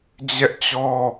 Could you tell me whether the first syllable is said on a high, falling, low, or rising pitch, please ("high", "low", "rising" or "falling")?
high